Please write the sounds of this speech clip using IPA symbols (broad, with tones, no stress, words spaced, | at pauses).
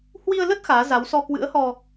hwi˧ə̯lə˦˥t̚ xaː˨˦za˨˦wsɔ˧ kwɨ̰˧˥ə̯hɔ˧